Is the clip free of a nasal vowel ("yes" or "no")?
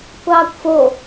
yes